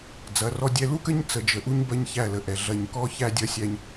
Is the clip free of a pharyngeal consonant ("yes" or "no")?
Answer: yes